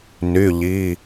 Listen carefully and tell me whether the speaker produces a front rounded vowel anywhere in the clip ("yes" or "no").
yes